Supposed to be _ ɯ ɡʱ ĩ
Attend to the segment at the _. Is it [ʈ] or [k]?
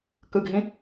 k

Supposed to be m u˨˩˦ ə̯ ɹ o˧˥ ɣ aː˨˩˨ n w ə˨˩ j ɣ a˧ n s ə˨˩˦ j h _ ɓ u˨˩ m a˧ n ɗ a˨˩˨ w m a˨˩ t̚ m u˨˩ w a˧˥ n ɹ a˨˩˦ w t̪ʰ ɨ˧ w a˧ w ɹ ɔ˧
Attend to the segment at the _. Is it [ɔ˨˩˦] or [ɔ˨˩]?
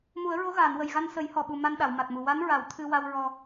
ɔ˨˩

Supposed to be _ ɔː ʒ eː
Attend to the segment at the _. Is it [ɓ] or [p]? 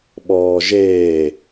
ɓ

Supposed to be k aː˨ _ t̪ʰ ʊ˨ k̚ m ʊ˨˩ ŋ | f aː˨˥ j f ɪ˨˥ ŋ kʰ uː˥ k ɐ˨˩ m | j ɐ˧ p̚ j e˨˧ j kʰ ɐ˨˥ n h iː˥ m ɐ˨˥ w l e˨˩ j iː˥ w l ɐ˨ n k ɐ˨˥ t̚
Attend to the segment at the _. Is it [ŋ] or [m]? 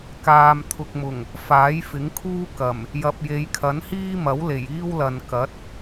m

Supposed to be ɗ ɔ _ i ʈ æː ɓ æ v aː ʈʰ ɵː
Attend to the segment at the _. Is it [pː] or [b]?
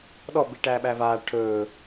b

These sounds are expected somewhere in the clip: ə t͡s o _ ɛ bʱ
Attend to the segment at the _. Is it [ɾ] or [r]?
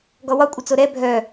ɾ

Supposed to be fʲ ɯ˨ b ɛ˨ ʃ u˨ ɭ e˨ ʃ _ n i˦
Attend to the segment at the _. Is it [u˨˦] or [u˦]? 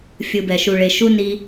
u˦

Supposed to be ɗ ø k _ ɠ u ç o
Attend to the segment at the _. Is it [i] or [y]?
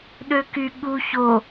y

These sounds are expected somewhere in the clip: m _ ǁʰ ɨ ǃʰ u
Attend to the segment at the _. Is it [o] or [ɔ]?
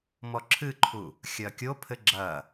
ɔ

